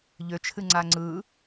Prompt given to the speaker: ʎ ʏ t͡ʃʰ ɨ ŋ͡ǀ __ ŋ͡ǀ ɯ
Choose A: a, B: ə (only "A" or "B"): A